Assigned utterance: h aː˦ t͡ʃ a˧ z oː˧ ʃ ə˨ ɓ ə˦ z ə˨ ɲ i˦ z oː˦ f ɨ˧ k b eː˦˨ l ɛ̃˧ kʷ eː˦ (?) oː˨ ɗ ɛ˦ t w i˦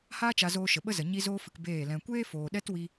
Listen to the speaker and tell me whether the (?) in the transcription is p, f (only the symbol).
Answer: f